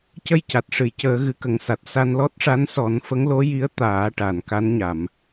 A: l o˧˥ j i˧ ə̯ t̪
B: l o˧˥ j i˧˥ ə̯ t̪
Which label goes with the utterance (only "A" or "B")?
B